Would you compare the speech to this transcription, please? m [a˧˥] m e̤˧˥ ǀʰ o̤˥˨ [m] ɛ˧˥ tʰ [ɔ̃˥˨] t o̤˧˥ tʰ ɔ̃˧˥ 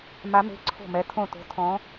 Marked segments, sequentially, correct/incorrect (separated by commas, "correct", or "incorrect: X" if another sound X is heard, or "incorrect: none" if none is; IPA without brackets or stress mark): correct, correct, incorrect: õ˥˨